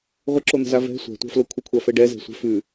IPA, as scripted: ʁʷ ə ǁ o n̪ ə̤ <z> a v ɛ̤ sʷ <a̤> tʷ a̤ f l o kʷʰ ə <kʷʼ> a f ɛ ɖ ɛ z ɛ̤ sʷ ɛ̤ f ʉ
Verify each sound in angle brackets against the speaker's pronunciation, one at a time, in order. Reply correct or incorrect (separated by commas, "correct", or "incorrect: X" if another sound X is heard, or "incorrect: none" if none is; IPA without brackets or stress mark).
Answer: correct, correct, incorrect: kʷʰ